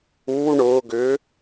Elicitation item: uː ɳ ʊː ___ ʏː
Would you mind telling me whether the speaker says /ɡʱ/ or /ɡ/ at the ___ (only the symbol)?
ɡ